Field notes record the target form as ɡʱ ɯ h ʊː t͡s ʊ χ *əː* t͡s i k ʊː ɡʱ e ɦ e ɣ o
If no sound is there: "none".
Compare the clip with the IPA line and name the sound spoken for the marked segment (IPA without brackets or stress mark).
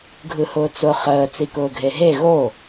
əː